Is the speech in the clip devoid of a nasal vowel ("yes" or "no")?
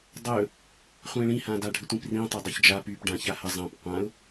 no